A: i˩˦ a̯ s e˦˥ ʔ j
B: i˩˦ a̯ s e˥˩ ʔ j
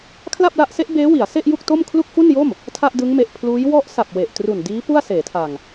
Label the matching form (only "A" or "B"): B